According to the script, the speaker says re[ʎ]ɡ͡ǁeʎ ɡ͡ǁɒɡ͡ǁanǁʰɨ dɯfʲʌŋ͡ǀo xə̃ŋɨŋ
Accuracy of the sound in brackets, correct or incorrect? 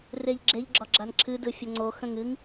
correct